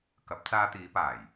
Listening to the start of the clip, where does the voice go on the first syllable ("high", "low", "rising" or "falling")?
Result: rising